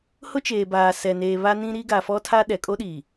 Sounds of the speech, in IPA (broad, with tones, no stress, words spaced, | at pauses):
hʊ˦t͡ʃeː˨ baː˨sɛ˨neː˨ βa˦nĩ˦ɾi˦ ɡa˨fɔ˦tʰa˦ ɗɛ˨ kʼo˦ɗiː˨